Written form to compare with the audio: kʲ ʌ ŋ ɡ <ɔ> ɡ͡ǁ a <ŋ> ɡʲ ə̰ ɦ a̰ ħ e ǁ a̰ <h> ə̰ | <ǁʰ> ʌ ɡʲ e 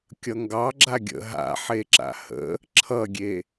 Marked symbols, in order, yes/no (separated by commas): no, no, yes, yes